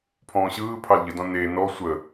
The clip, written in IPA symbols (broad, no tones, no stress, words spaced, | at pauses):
pʰɔ̃ːɕɯːpʰɑl ʎədɔ̃ ne nɔ sʷə